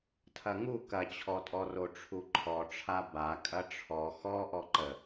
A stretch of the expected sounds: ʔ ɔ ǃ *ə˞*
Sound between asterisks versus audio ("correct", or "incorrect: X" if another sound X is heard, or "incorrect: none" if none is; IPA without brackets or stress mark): incorrect: ə